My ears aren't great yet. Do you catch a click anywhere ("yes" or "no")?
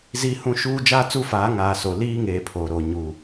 no